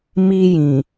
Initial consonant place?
labial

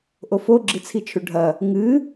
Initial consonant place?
glottal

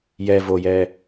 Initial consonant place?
palatal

